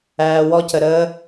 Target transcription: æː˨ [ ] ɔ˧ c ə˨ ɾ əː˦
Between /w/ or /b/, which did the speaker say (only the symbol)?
w